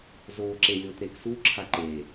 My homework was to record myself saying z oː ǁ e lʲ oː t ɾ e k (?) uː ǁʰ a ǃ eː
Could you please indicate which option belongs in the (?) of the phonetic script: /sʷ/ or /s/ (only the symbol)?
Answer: s